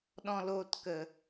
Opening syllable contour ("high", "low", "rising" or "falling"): low